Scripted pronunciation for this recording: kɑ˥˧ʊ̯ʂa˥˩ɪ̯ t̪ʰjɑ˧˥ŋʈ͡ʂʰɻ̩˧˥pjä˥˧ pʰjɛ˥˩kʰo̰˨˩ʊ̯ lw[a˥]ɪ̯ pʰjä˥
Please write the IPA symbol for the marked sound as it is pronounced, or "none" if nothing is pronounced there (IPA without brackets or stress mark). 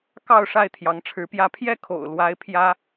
a˥